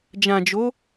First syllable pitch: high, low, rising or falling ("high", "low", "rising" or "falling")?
low